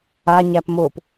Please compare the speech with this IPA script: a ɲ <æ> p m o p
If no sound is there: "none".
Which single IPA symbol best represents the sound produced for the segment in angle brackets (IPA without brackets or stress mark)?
æ